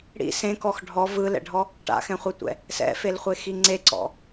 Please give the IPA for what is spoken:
ɽḭ sẽkɔx ɖʱɔ vɯlɛ̰ɖʱɔ | ʈa̰xɛ̃χʷɛtʷɛ̰ | sɛ̰felχʷexi ŋ͡ǀeǀɔ̰

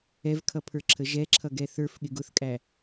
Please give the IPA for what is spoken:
ɛvkʰʌpʰə˞ǁʰə ʒɛǁʰʌɡɛ θə˞fɠɪɡ ʊθkʼæ

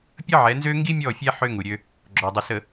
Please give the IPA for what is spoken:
pʲə˦ʕɛ˨˦nzø˦ ŋɡi˦mʲɔ˦˨fʲɛ˦ ħø˦ŋu˨ ɾʲø˦ | ɡ͡ǁɔ˨dˤə˨sə˨

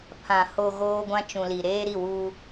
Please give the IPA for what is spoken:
pʰã˨ ho˨ ɣoː˦ɡʷã˦ t͡ʃũ˨li˨ ɾeː˦ɾi˦˨wuː˦

